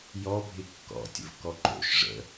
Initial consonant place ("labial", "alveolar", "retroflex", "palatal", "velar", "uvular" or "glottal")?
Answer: palatal